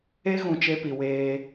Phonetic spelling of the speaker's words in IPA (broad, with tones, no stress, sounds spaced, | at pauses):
e˦ ɣ ũ˨ t͡ʃ e˦ p i˨ w eː˦